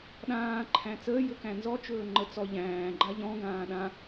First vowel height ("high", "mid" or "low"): low